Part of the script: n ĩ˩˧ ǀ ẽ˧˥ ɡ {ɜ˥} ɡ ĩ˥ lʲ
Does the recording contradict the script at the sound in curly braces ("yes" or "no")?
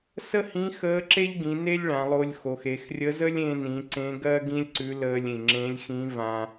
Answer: no